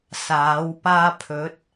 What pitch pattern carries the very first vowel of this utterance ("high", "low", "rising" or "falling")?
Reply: rising